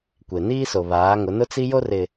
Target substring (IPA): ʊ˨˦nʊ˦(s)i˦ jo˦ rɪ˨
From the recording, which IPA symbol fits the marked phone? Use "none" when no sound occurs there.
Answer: t͡s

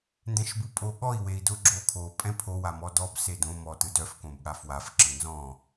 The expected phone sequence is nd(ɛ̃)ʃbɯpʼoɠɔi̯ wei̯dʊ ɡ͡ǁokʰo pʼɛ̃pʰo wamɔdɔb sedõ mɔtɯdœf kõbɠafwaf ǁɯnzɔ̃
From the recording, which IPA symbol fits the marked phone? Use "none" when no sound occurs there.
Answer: ɛ̃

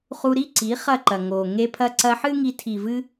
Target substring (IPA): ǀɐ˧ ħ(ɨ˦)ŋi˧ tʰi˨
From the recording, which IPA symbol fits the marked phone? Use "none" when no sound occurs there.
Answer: ɨ˦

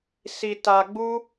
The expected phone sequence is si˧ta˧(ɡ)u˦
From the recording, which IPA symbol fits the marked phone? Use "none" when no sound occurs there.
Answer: ɡ͡b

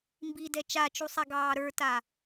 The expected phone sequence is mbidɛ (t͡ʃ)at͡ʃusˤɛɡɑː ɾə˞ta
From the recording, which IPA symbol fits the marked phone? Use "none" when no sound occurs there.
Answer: t͡ʃ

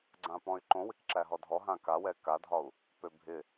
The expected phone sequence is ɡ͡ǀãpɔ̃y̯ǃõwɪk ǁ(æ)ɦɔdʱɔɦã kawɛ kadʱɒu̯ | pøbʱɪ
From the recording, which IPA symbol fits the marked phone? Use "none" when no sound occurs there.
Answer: æ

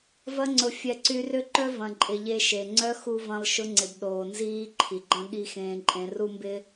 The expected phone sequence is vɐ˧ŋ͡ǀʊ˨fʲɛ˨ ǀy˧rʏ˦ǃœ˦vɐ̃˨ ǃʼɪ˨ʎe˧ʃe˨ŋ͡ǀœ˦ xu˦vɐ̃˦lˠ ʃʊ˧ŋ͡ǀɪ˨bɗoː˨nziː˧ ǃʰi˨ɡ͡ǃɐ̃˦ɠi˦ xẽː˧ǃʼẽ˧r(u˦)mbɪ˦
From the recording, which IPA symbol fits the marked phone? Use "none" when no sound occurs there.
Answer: u˦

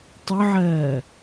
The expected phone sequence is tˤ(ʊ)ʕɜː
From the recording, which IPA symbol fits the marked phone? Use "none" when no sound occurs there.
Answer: ʊ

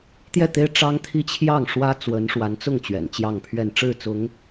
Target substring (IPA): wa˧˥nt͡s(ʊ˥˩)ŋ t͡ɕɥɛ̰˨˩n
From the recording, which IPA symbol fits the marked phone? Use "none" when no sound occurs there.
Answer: ʊ˥˩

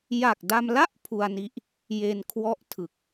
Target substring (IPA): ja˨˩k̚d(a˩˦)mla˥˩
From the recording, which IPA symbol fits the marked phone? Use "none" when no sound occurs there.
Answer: a˧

